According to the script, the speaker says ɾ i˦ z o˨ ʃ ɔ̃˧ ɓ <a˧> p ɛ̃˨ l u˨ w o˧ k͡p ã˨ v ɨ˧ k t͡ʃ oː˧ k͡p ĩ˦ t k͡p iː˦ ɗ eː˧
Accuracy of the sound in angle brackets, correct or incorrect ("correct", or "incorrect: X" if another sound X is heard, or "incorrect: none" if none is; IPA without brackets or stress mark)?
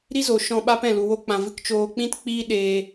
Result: incorrect: a˦